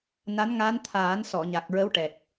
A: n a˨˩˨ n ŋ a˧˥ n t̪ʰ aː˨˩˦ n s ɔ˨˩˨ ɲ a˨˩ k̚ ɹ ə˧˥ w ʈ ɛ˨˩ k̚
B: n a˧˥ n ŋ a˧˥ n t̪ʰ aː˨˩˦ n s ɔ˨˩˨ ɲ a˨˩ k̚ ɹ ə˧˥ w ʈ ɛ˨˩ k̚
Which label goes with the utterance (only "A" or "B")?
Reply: B